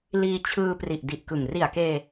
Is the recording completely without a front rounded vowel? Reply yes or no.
yes